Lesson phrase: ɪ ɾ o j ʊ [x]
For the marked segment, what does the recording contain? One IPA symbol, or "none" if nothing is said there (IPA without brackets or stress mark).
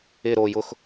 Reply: x